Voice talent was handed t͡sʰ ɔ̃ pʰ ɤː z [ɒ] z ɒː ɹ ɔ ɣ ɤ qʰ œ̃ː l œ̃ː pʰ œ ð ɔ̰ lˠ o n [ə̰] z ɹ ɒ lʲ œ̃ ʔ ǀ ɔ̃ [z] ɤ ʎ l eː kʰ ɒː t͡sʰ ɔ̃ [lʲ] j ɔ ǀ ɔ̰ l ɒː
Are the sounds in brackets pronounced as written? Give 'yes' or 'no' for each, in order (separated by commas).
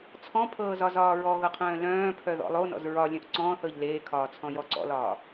yes, no, no, no